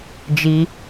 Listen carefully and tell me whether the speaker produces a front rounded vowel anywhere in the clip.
no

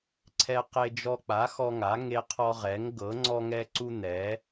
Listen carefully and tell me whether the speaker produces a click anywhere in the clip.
yes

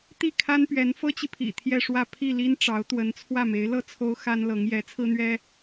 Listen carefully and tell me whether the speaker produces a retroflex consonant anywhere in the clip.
yes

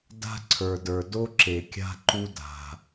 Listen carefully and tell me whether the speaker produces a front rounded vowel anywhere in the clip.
no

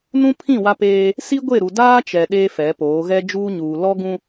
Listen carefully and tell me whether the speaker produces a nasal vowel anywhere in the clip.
yes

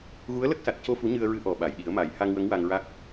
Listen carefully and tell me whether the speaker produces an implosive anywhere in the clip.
yes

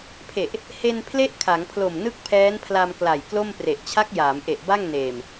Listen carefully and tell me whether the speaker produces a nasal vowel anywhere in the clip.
no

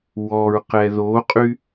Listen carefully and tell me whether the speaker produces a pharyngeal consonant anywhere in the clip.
no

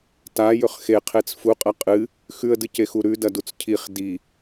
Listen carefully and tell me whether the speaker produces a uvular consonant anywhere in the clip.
yes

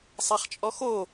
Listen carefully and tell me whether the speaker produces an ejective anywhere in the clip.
yes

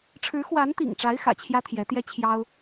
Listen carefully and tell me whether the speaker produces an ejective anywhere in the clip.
no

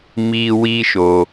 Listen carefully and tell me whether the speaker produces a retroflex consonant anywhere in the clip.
no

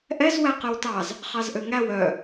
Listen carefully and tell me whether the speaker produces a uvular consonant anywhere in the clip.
yes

